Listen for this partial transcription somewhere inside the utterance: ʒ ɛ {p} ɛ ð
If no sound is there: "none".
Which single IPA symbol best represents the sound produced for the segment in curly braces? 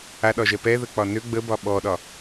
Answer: p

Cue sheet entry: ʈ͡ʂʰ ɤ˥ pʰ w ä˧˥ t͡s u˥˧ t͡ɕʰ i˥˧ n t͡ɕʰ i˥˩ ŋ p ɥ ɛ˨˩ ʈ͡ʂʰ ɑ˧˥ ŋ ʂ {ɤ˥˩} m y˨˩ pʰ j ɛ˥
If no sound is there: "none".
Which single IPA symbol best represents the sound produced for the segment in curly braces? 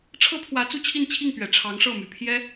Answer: ɤ˥˩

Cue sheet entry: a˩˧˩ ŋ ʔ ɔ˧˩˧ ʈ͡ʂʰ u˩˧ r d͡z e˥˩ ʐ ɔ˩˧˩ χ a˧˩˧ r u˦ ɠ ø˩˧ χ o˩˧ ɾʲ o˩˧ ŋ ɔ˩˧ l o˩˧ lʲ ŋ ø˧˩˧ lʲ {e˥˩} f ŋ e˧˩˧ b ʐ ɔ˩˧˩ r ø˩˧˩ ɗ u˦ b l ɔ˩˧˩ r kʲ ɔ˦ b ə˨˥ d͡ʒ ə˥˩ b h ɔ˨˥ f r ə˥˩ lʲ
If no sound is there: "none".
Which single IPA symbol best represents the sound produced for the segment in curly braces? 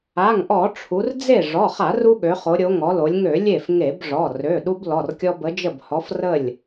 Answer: e˥˩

